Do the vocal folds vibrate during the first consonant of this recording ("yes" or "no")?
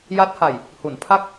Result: yes